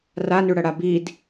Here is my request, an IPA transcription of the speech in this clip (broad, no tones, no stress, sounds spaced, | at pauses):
r a n ʉ ɽ ɐ ɽ a b i d